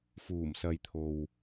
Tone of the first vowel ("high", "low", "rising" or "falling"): low